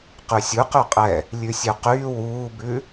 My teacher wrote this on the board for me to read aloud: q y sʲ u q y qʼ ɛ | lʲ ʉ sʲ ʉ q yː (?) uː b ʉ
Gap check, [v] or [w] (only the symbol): w